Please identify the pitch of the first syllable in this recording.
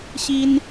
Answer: high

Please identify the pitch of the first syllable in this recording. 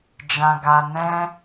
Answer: low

